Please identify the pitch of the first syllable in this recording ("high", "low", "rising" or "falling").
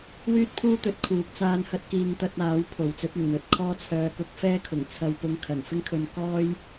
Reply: high